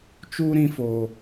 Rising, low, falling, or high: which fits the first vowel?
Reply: high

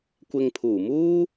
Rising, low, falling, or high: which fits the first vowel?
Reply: low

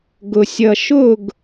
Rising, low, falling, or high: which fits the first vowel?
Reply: low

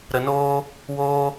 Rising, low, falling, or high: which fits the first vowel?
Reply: low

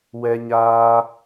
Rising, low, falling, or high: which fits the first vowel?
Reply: high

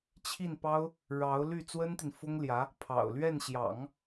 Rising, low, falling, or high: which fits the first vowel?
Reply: falling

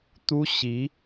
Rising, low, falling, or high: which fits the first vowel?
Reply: high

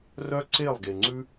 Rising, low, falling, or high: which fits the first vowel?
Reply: high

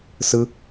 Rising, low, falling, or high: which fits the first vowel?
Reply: high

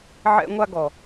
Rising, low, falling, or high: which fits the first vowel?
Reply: high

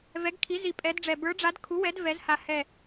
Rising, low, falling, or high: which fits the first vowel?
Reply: rising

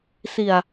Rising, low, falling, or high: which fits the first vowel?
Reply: low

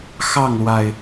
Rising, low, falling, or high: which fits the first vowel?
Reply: falling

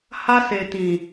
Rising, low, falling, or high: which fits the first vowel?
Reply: high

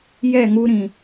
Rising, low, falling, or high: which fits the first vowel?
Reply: falling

